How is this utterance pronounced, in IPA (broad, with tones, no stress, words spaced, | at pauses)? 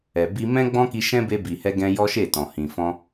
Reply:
ɛ˨bi˧ mɛ̃˦ɡ͡bɔ̃˦ki˧ ʃɛ̃˦be˧ bi˨hɛ˧ɡɛ̃˧ jɔ˦ʃe˦˨tɔ̃˨hĩ˨ fɔ̃˧